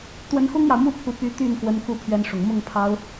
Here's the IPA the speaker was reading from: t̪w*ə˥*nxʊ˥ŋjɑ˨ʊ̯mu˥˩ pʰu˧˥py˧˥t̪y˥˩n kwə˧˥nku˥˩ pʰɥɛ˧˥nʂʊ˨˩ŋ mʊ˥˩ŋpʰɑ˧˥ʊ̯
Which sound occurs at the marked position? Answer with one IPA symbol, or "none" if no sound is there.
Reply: ə˧˥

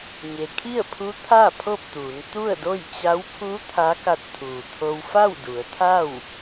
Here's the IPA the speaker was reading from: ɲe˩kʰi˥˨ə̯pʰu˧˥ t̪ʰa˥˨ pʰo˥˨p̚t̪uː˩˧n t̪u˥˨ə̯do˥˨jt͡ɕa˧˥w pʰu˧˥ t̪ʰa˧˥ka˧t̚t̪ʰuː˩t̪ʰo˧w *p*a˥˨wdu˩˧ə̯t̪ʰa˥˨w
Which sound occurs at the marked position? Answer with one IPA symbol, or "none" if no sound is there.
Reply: f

